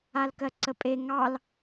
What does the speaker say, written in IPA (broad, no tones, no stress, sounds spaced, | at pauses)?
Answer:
a l k ɜ ǀ ə pʼ e ŋ ɑ l